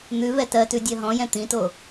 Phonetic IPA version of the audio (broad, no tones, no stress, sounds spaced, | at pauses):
n̪ ʉ v ɛ t ɜ t ʉ dʲ ɜ ɦ ɔ̃ j ɛ̃ t̪ ĩ t o